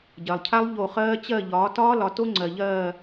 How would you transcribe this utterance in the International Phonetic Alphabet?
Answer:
ɟ ɜ˨ lˠ cʰ a˦˥ lˠ ʎ o˦˨ χ ɜː˦˥ t͡ɕ ɜ˦˨ ʎ ɒː˨˦ t ɒː˦˥ l ɒ˨˦ t o˦˥ ŋ͡ǀ ɜ˨ ʎ ɜː˦˨

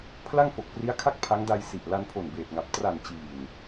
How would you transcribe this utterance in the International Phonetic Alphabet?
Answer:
pʰ l a˥˩ ŋ f o˨˩ k̚ p r i˦˥ a̯ kʰ a˥˩ k̚ pʰ a˦˥ ŋ d a˧ j s i˨˩ ʔ l a˧ n pʰ o˨˩ n b eː˨˩ t̚ ŋ a˨˩ p̚ t r a˨˩ n t͡ɕ iː˨˩ n

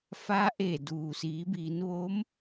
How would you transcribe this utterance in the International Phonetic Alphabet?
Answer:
f a˧˥ ʔ e˧˩ d uː˩ s iː˩˧ b iː˩˧ n ʋ oː˧˥ m

